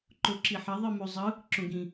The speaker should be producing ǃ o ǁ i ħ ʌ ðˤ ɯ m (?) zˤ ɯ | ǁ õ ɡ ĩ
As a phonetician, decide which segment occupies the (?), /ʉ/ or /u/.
u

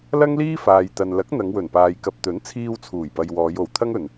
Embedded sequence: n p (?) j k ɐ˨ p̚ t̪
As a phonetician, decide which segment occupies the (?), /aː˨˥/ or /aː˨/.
aː˨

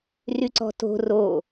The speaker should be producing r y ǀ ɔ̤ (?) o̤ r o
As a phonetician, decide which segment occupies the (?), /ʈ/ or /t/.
t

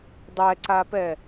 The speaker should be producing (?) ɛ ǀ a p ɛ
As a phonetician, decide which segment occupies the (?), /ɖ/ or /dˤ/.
dˤ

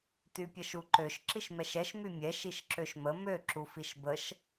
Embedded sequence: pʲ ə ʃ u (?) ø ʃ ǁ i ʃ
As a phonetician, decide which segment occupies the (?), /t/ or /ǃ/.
ǃ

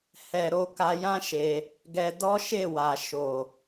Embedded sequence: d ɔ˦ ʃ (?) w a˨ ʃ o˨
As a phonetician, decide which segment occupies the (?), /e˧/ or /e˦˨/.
e˦˨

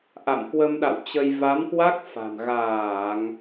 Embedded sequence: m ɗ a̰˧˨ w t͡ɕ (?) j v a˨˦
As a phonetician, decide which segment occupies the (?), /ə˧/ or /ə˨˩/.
ə˧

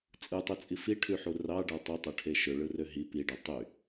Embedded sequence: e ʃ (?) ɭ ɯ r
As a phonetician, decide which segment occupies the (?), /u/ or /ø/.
ø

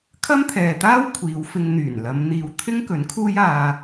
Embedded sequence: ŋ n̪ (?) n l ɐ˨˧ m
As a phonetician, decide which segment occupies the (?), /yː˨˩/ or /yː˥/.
yː˨˩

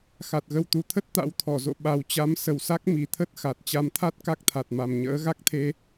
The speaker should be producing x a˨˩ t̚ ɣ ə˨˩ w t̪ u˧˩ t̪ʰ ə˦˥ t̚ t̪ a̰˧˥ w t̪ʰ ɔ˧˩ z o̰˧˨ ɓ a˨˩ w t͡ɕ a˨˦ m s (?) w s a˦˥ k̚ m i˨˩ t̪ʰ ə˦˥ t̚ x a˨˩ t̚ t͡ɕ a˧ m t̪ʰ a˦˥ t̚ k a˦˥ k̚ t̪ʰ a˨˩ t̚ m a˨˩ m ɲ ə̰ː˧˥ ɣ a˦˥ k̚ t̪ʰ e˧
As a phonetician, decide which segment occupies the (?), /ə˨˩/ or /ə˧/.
ə˨˩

